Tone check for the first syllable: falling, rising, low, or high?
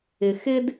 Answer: low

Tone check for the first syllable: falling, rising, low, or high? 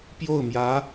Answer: falling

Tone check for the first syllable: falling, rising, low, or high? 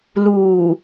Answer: low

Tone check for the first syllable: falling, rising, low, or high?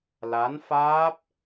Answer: rising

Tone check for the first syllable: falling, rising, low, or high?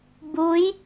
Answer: rising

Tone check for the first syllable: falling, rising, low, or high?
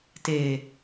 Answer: low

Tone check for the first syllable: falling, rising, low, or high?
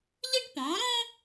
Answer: high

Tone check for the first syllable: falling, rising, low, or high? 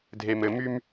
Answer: low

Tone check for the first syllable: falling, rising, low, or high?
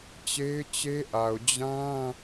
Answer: high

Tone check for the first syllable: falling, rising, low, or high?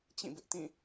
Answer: falling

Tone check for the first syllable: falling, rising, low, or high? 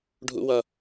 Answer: high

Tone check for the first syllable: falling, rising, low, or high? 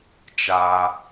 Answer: high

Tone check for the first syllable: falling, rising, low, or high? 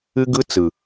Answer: high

